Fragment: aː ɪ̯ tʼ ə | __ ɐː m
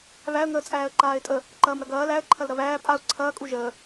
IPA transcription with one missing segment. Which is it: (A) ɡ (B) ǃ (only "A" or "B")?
B